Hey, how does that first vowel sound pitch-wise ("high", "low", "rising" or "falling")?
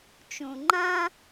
low